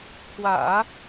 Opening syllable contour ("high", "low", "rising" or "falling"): low